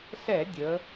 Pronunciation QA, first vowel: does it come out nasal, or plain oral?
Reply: oral